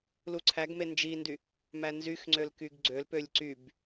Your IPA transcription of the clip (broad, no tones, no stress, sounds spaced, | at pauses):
l u ǀʰ æ ɡ m e n d͡ʒ i n d y | m æ n z y x ŋ͡ǀ ø l k y ɡ ɡ͡ǀ ø l p ø lʲ ǀ y b